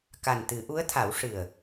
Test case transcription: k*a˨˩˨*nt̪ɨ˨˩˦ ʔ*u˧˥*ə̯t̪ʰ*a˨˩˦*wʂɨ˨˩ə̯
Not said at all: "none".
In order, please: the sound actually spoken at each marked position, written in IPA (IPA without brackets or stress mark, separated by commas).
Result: a˨˩, u˧˥, a˨˩˦